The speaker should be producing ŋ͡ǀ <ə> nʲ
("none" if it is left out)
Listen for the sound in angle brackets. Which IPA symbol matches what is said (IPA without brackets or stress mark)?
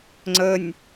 ə